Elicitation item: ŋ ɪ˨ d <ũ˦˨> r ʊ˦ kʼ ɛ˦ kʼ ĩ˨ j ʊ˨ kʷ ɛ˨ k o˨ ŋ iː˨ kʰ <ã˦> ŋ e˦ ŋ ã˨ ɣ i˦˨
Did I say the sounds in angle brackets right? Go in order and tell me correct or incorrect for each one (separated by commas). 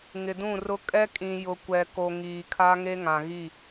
correct, incorrect